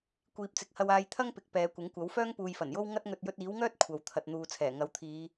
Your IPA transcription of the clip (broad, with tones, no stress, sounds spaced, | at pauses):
kʷ iː˨ p̚ t͡s ɪ˨˥ k̚ h ɐ˧ w aː˧ j t̪ʰ ɐ˥ ŋ p ɪ˨ k̚ p ɛː˨˧ kʷ ɪ˨˥ ŋ kʷ ɐ˨˥ w f œː˥ ŋ p uː˨ j f ɐ˨˩ n j o˥ w ŋ ɐ˥ t̚ ŋ ɵ˧ t̚ j ɵ˧ t̚ iː˨˥ w ŋ œː˥ t̚ kʷʰ ɐ˨˧ w t̪ʰ ɐ˨ t̚ n̪ uː˨ t͡sʰ ɛː˨˩ ŋ ɐ˨˥ w t̪ʰ iː˨˧